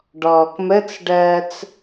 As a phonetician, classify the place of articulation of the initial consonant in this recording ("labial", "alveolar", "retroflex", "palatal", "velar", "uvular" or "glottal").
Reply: retroflex